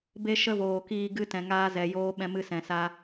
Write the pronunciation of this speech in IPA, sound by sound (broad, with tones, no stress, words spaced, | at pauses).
be˧ ʃə˦voː˨kiː˧ ɡɨ˧tɛ̃˨ ŋaː˧zɛ˨joː˧ ɓɛ̃˧mɨ˧sɛ̃˨sa˧